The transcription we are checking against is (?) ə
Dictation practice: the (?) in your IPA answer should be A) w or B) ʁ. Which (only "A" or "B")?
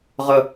B